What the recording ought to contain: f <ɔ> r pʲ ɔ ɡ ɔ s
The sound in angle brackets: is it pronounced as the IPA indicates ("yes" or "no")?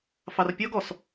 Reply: no